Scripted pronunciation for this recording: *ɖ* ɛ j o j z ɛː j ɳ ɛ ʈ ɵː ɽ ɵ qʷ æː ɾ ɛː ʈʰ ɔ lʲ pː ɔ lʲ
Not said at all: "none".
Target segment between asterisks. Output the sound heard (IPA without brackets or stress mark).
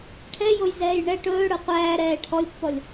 ʈʰ